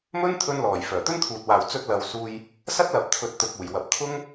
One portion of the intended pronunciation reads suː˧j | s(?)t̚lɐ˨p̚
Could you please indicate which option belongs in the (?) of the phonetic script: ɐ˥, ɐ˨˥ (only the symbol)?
ɐ˥